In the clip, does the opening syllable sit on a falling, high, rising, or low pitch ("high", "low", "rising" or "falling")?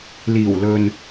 low